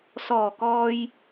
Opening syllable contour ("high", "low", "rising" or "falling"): low